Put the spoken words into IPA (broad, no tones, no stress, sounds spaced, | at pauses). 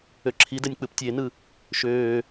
ø ǁʰ i d ɛ nʲ k͡p ɯ p tʲ e n ɯ | ʃ øː